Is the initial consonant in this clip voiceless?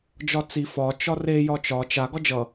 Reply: no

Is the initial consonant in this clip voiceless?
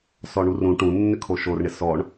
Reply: yes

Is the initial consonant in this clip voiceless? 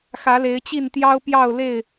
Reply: yes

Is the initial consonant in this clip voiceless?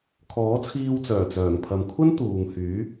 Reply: yes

